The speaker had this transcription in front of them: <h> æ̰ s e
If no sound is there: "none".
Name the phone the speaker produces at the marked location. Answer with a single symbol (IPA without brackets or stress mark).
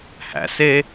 h